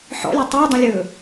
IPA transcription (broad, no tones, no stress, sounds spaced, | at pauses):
ħ ɔ̰ lʲ e tˤ ɵː dˤ ə̃ lʲ ɵː